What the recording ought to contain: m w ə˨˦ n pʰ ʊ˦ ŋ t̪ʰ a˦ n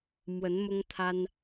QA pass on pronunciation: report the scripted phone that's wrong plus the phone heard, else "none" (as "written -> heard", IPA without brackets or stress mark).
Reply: pʰ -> m